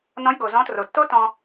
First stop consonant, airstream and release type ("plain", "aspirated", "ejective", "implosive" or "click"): plain